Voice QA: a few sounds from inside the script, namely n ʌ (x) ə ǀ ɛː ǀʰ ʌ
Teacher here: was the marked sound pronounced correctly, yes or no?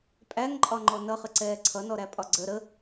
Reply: no